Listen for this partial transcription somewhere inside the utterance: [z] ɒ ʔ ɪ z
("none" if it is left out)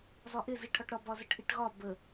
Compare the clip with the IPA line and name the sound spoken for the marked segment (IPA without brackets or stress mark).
z